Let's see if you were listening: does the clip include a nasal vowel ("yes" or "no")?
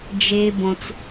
yes